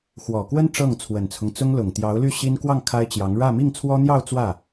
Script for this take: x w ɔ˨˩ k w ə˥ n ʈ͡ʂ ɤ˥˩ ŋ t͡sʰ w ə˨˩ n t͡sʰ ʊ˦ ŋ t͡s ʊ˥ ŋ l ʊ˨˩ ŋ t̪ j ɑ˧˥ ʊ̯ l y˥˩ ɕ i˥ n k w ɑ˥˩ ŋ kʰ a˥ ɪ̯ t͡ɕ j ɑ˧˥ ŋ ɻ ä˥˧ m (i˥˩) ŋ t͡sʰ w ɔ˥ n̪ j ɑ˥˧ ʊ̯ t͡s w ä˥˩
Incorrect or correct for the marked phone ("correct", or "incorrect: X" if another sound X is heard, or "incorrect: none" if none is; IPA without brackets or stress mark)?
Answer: correct